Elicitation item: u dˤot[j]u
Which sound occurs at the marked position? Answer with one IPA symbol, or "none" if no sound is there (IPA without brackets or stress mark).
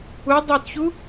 ç